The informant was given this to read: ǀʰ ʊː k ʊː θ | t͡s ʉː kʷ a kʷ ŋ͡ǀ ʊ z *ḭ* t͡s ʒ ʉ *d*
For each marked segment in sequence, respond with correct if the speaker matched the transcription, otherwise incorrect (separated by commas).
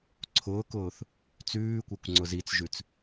incorrect, incorrect